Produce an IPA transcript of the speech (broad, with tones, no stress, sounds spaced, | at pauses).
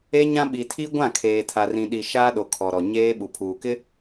e˦ ɲ ã˦ ɓ i˨ tʰ i˦ ɡʷ ã˦˨ kʰ eː˨ tʰ a˨ r ĩ˨ ɗ i˨ ʃ aː˦ ɗ o˨ kʰ ɔ˨ ɾ ɔ˨ ɲ eː˦ ɓ u˨ pʰ uː˨ k ɪ˦